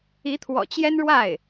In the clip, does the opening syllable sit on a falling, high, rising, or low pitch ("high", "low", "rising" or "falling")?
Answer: rising